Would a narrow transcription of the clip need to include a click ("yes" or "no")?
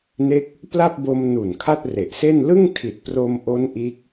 no